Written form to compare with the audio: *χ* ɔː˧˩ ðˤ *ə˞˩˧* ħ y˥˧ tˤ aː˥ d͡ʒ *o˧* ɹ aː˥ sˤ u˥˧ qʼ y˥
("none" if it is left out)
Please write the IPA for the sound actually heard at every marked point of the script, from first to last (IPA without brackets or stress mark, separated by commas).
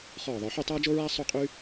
χ, ə˞˩˧, o˥